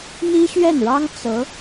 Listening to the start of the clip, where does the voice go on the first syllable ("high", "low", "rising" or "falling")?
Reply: high